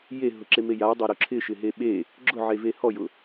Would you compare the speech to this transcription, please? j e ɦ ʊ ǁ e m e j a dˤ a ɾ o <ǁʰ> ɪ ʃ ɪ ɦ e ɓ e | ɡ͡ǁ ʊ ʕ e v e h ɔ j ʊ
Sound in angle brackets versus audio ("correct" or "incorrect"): correct